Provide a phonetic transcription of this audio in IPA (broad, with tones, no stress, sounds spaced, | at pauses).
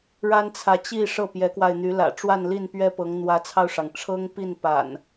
ɻ a˦ n t͡sʰ ä˨ t͡ɕ i˥˨ ʂ ɤ˥˨ p j ɛ˨˦ k w a˧ ɪ̯ n̪ y˨˦ l ä̰˨˩ ʈ͡ʂ w a˥˨ n l i˥˨ n p ɥ ɛ˦ p ɤ˨˦ ŋ n̪ w ä˨˦ t͡sʰ ɑ˧ ʊ̯ ʂ ɑ˩ ŋ ʈ͡ʂʰ ɤ˦ ŋ p i˥˨ n p a̰˨˩ n